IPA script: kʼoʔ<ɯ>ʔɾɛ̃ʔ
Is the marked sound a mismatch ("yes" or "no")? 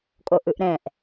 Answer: no